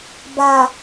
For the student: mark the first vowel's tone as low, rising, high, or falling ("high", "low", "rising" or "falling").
low